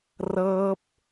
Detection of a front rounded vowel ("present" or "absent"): absent